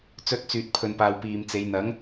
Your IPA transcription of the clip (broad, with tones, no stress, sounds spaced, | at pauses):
t͡s ɵ˧ t̚ t͡s yː˨ t̚ pʰ ɵ˨ n p aː˨ w p iː˨ m t͡s e˨˧ j n̪ ɐ˨˥ ŋ